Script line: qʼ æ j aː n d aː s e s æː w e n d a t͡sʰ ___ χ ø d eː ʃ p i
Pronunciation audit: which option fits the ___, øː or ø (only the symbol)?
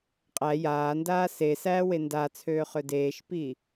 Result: øː